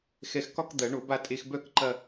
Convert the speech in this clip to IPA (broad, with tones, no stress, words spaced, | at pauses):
xɛ˧xkɒ˥˧k d̪ɐ˨˩˦ɳo˨˩˦b a˥˧ tʼe˧xbœ˥˧k ǃɐ˥˧